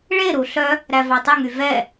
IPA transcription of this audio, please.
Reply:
ɭ e ɾ u ɬ œ | ɾ æ v ɑ tˤ ɵ ŋ y v ɛ

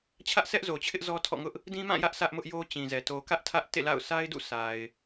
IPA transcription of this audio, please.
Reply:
t͡ɕʰ ä˦ ʔ s ɛ˦ ʔ z o˨ t͡ɕʰ ɪ˦ ʔ z ɔ˦ tʰ ɔ̰˦˨ ŋ ʊ˦ ʔ | d ĩ˦ m ã˦˨ j ä˦ ʔ s ä˦ ʔ m ʊ˦ ʔ j o˦ t͡ɕ ĩ˨ z ɛ˨ t o˨ k ä˦ ʔ tʰ ä˦ ʔ t ḛ˦˨ l a̰˦˨ ʊ̯ sʰ a˦ ɪ̯ d ṵ˦˨ sʰ a˨ ɪ̯

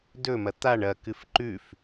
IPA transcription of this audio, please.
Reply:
d ɵ m ɐ t̪ a ɳ ɐ k ɨ f ǃ ʉ f

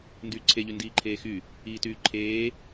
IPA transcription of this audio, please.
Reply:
n d yː ǀʰ e ʎ y n d iː ǃʰ eː x y | iː t yː ǃʰ eː

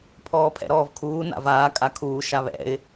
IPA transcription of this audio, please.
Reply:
pʰ ɔː pʰ ɛ̰ ɾ ɔː v kʰ uː n a̰ v aː kʼ a kʰ uː ʃ a β ɛ̰ ɪ̯

